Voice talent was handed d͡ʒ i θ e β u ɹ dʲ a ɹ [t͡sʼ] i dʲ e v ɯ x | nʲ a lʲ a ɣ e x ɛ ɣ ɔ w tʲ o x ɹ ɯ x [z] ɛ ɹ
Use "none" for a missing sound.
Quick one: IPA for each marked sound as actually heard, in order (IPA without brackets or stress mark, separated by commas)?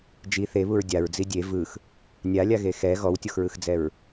d͡z, d͡z